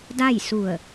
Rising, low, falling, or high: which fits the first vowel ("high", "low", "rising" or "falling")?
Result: falling